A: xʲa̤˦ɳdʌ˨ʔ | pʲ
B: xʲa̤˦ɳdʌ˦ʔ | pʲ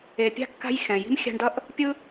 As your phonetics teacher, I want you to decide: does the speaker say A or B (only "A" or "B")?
B